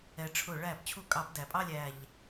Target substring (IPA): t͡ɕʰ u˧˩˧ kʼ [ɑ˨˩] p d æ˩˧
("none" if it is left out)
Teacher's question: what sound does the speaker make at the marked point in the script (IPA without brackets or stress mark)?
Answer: ɑ˧˩˧